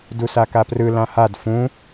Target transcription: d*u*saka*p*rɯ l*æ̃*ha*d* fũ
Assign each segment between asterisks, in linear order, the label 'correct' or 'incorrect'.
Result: correct, correct, incorrect, correct

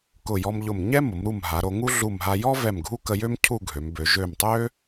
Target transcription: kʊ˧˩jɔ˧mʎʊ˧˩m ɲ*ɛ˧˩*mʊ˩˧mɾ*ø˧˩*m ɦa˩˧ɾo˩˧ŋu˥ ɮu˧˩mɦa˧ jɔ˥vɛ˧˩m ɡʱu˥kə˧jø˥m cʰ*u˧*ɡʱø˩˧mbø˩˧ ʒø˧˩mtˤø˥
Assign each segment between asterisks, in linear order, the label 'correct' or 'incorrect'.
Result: incorrect, incorrect, incorrect

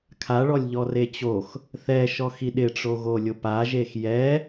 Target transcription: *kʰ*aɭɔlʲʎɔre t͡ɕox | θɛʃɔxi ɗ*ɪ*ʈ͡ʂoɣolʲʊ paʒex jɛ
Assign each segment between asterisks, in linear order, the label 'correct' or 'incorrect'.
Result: correct, correct

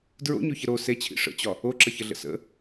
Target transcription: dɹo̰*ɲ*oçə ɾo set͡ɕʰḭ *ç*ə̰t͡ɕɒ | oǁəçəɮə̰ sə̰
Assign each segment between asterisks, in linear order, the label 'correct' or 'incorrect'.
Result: correct, incorrect

